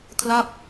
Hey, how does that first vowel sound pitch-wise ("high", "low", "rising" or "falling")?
falling